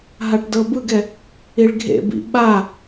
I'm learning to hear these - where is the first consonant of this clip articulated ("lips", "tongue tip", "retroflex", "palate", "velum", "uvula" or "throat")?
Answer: throat